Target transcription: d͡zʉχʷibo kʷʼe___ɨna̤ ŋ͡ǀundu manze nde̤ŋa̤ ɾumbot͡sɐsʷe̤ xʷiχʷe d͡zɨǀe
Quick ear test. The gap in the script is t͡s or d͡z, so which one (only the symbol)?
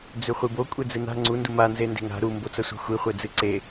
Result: d͡z